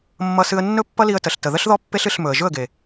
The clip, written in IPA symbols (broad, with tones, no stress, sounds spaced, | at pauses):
mː ʌ˧ s ɨ˧ ə̯ nː ɵ˦ pː ʌ˦ l i˧ ə̯ t ə˨ ɬ t ə˨ ð ə˦ ɬ ð ɔ˦ pː e˦ ɬ ɨ˧ ɬ m ɵ˨ ə̯ ʒ ɵ˦˨ ə̯ ɡ e˨